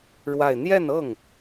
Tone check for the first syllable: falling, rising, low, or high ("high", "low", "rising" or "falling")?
falling